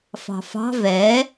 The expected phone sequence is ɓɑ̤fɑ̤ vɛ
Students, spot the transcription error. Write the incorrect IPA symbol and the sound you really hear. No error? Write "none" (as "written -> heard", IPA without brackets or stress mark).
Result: ɓ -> f